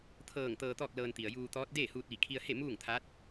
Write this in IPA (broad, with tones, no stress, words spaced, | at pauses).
t̪ʰɤː˧˩ŋ t̪ɤː˧t̪ɔː˥˨k̚lɤː˧n t̪i˩ə̯juː˧t̪ɔː˧˥t̚ deː˥˨huː˧t̚ʋi˧˩ kʰi˧ə̯he˥˨ muː˥˨ŋt̪ʰaː˧˥t̚